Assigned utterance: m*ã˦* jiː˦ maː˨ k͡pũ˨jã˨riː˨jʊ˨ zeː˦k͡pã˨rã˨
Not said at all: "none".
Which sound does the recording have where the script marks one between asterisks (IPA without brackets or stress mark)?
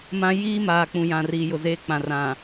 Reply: ã˦